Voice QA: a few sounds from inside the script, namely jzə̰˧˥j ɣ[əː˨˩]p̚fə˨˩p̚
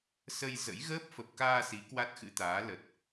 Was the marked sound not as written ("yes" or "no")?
yes